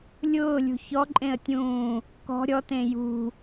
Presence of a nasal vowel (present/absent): present